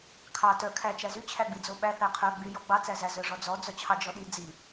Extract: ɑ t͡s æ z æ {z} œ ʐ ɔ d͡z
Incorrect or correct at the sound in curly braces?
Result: correct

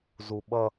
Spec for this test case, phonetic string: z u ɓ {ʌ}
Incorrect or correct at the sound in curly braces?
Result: correct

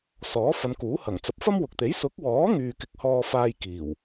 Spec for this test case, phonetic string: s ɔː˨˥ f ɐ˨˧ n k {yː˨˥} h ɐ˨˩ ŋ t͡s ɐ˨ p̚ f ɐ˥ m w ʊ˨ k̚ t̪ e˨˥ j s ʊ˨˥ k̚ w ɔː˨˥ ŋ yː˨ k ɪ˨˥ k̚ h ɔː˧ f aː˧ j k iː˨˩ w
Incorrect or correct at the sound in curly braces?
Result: incorrect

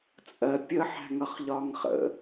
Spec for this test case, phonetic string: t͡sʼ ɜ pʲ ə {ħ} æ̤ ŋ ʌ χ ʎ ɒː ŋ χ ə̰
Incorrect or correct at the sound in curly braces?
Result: correct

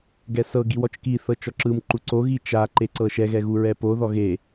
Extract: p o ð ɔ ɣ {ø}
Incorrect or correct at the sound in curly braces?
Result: incorrect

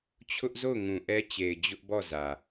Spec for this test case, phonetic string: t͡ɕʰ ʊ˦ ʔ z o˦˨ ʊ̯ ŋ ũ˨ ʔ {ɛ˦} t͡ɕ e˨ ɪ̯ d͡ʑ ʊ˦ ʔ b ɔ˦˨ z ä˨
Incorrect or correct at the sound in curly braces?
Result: correct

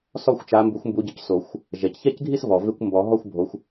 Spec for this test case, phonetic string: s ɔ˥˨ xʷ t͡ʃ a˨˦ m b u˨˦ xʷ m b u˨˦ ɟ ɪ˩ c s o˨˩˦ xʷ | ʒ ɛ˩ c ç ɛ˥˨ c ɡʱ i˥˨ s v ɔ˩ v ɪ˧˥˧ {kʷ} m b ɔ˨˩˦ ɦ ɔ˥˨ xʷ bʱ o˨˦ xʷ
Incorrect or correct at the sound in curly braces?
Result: correct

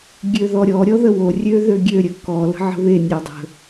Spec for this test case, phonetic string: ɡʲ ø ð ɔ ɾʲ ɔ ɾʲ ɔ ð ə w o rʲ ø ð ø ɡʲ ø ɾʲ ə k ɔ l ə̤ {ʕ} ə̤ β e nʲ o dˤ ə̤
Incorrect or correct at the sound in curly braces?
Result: correct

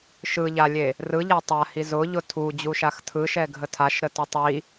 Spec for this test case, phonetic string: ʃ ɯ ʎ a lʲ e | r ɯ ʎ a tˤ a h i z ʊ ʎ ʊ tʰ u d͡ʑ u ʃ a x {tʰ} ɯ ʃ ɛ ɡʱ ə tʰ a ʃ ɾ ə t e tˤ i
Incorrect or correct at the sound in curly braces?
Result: correct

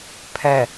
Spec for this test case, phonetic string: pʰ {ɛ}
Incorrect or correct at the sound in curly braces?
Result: correct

